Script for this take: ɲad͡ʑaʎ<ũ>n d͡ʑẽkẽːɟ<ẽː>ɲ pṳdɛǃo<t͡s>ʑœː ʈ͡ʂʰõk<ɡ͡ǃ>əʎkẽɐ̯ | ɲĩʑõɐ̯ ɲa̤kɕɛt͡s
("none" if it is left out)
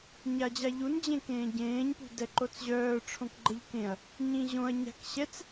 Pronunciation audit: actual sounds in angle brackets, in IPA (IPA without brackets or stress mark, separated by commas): u, ẽː, t͡s, ɡ͡ǃ